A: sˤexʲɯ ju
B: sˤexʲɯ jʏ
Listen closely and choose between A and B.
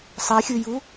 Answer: A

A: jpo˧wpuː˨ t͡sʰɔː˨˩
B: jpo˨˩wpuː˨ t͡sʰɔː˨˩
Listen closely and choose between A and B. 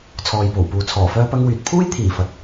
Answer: B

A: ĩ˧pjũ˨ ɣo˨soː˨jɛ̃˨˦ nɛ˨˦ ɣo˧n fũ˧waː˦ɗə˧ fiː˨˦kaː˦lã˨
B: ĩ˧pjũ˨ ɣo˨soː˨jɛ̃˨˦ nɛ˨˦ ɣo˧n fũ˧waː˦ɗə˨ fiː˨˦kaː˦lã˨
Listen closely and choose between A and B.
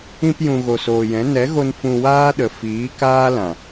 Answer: B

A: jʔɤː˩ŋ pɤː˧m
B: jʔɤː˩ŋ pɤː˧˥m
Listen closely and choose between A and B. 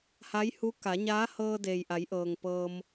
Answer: A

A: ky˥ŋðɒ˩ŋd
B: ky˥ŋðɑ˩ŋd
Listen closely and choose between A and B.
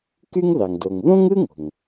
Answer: B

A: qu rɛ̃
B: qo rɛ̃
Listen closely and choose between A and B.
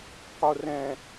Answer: B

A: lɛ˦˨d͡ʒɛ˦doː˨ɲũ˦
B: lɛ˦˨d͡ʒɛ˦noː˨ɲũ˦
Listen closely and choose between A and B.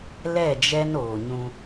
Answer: B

